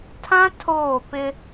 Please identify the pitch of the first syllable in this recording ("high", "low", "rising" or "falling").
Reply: high